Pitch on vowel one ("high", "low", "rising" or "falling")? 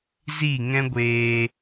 falling